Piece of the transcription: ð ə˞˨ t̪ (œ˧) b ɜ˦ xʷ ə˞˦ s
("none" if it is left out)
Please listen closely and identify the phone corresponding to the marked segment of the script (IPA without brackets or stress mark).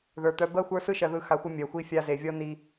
œ˧